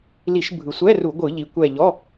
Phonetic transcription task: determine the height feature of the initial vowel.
high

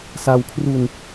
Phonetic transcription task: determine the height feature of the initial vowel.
low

